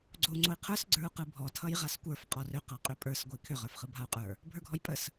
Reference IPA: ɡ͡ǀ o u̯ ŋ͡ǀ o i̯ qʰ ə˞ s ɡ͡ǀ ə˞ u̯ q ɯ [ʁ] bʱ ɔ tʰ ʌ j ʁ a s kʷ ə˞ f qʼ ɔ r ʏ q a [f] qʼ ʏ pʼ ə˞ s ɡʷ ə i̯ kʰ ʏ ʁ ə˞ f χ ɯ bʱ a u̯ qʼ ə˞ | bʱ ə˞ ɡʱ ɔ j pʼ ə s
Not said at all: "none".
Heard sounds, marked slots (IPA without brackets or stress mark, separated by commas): none, none